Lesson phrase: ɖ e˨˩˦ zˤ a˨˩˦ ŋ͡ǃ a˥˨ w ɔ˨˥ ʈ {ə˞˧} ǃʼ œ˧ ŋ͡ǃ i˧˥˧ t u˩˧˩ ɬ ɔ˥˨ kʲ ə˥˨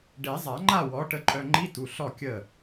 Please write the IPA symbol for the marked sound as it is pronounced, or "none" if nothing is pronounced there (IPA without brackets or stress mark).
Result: ə˧